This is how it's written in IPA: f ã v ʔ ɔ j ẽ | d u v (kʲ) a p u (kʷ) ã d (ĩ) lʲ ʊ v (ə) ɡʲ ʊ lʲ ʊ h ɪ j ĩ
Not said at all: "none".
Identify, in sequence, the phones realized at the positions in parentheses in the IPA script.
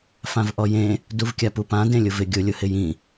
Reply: kʲ, p, ẽ, ɪ

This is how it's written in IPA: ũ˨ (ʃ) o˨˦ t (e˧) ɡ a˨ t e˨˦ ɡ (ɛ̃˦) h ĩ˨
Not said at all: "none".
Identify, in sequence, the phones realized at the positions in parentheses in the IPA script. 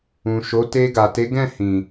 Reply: ʃ, e˧, ɛ̃˦˨

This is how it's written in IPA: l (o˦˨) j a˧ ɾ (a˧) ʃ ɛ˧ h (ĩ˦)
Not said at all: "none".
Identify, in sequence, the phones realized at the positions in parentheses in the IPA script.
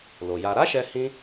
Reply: o˨, a˦, ĩ˦

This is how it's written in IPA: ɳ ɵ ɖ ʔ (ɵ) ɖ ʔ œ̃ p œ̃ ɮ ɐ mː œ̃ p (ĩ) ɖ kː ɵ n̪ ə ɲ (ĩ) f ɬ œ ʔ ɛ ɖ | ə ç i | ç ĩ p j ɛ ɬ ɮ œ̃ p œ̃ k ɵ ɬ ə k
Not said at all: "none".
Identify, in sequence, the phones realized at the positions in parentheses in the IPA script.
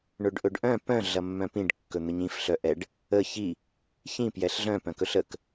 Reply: ɵ, ĩ, ĩ

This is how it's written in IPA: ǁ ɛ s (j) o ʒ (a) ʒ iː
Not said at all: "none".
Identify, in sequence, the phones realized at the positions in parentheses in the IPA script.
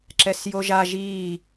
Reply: j, a

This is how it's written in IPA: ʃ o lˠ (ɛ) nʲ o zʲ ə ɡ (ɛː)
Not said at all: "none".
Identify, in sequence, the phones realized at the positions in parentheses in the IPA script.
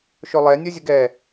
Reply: ɛ, ɛ

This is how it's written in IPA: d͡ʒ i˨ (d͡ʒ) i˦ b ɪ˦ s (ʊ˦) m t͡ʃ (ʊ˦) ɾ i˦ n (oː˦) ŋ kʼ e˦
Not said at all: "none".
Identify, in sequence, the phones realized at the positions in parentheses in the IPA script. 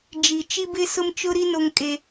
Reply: t͡ʃ, ʊ˦, ʊ˦, o˦

